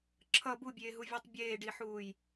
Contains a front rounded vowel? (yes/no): no